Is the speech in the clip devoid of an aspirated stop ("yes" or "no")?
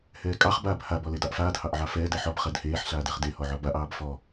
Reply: yes